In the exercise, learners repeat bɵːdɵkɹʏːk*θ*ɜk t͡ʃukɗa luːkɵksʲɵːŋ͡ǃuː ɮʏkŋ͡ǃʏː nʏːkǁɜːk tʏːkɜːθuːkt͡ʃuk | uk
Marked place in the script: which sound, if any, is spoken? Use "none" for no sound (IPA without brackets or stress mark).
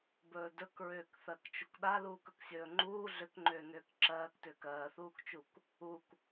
θ